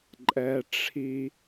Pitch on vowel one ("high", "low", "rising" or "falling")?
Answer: low